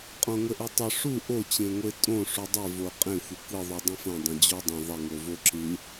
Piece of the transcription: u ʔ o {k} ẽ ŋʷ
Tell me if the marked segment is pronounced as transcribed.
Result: no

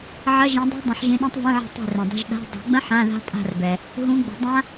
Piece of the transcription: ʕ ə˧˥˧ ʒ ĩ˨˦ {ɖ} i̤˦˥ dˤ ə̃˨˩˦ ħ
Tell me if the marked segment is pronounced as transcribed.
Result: no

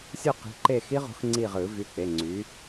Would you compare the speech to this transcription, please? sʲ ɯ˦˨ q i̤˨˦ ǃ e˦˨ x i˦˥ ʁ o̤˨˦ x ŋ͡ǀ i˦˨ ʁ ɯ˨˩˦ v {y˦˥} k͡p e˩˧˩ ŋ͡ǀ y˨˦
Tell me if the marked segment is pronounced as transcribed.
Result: no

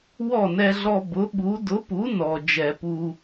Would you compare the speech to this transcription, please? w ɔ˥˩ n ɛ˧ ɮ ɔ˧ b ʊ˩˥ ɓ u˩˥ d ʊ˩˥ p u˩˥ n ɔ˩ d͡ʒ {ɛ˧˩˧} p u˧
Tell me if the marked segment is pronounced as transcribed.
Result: yes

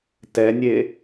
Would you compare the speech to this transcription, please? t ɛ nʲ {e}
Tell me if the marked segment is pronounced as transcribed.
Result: yes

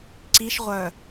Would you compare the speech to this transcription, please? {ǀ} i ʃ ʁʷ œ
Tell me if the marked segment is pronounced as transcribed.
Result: yes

